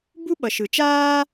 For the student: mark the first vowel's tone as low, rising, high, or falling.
high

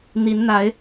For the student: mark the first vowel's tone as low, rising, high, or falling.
rising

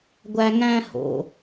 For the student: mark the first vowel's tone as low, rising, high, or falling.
high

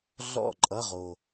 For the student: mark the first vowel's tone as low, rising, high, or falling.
falling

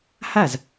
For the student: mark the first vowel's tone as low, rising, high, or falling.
falling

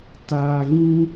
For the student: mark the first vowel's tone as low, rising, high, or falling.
low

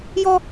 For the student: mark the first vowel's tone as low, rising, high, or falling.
high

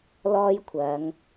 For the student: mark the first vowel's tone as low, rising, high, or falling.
high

